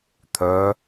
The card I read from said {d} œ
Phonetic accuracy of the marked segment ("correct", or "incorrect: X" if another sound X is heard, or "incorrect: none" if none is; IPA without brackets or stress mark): incorrect: t̪ʰ